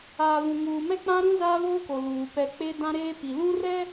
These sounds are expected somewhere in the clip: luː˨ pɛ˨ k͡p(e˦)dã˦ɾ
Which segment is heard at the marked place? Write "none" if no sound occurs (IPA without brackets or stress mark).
e˦